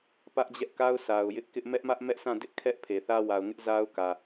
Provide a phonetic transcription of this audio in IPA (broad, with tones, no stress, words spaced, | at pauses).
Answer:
pä˦ʔd͡ʑɛ˦ʔka˦ʊ̯ sa˨ʊ̯ jɪ˦ʔkɪ˦ʔ mɛ˦ʔmä˦ʔmɛ˦ʔsʰã˦˨ dɪ˦ʔ kʰɛ˦ʔ pʰe˨θä˦ wa˨ʊ̯ŋɪ˦ʔ za˦ʊ̯kä˨